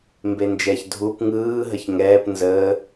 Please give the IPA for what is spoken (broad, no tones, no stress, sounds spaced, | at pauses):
m b e n d͡ʒ ɛ ç dʱ u p ŋ ɯː ɦ ə ç ŋ ɛː p n z əː